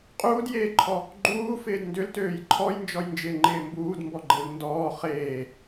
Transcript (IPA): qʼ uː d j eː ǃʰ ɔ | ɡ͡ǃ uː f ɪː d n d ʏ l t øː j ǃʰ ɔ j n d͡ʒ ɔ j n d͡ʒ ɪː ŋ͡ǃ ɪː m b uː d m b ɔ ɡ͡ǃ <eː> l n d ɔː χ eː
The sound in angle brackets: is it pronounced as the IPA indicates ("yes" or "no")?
no